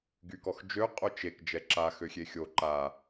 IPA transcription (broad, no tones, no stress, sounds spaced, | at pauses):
ɡ y k ɔ x d͡ʒ ø qʼ o t͡ʃ e k d͡ʒ ɛ ǁ a x ø xʲ e xʲ o ǃ a